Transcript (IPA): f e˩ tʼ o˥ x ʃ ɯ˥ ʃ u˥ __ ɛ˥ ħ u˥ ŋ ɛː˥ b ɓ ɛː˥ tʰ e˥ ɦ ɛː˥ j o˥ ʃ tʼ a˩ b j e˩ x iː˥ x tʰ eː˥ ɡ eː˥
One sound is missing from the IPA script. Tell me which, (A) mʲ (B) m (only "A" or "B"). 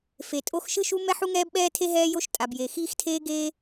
B